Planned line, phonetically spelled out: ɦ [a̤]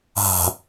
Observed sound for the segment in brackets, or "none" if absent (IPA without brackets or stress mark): a̤